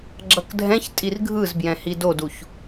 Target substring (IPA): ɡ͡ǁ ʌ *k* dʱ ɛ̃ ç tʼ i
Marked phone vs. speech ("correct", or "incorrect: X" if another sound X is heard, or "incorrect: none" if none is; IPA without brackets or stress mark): correct